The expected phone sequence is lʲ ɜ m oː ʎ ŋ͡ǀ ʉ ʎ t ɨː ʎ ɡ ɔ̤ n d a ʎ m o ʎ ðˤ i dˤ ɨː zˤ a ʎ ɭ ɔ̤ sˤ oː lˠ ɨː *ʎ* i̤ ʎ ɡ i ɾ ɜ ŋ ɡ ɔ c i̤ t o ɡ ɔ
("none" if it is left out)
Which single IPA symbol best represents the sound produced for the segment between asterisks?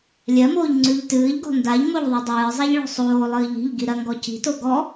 ʎ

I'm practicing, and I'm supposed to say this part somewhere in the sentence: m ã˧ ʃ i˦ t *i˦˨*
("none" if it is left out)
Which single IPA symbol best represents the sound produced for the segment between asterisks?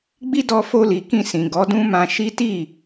i˦˨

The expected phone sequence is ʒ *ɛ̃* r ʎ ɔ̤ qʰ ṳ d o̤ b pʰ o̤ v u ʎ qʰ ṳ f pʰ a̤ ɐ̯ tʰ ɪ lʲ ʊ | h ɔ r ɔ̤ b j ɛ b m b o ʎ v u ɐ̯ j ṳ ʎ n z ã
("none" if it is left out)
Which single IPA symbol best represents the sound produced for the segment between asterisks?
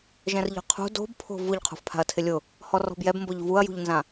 ɛ̃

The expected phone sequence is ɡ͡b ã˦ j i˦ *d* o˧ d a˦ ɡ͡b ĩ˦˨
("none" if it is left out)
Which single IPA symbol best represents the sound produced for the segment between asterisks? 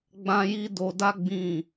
d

